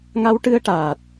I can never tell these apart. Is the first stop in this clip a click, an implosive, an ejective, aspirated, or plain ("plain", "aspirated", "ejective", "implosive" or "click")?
plain